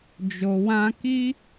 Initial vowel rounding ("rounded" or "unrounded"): rounded